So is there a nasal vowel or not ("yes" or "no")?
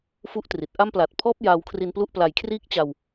no